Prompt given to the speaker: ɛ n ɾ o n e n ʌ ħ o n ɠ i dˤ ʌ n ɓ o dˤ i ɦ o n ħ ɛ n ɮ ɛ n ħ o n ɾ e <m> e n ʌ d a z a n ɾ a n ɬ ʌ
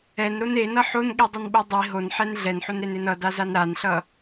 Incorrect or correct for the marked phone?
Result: incorrect: n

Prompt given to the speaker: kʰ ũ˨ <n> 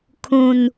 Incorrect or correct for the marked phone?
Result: correct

